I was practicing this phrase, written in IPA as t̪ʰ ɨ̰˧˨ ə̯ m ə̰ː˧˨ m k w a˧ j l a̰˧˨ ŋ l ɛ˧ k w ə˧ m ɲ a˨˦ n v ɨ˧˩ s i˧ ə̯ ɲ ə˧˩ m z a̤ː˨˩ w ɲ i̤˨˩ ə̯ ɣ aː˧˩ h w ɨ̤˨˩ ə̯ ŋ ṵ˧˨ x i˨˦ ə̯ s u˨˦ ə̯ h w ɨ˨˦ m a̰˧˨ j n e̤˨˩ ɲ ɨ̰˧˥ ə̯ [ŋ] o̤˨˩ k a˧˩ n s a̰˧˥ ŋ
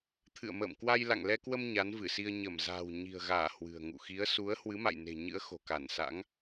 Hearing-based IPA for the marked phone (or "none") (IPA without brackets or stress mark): x